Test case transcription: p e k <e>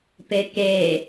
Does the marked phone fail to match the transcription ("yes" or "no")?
no